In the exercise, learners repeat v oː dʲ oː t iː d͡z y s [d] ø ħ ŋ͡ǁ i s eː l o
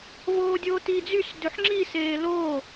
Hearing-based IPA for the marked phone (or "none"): d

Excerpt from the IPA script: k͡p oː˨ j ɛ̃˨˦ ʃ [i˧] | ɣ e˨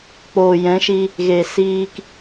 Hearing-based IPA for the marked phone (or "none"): i˧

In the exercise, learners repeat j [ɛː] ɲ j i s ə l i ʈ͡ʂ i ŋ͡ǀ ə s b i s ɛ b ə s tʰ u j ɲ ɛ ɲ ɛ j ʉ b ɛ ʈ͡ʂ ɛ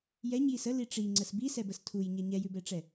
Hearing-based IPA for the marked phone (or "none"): ɛ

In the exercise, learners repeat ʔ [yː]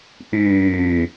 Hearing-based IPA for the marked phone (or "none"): yː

